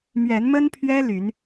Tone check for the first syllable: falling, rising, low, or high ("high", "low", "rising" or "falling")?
rising